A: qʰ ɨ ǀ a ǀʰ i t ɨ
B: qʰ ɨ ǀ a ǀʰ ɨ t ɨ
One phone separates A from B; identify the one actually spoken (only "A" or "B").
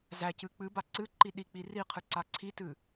A